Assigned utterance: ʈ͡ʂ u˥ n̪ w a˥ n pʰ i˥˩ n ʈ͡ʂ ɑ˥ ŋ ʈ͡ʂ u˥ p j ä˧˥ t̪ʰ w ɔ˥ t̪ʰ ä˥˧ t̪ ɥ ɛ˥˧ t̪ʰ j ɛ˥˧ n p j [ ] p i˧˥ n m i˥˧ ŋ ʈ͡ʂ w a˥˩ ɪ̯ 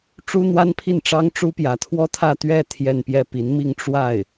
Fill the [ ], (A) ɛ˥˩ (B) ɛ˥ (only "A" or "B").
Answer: A